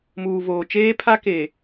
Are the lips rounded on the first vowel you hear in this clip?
yes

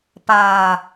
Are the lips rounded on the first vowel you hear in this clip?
no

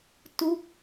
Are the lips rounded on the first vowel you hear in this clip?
yes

